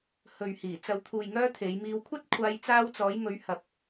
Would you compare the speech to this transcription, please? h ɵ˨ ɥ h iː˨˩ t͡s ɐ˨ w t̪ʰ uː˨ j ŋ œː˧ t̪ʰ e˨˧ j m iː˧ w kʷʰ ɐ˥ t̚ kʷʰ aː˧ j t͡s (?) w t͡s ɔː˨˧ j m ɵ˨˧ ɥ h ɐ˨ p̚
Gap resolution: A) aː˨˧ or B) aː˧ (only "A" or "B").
B